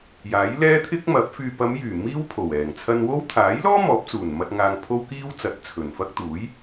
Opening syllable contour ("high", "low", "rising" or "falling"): rising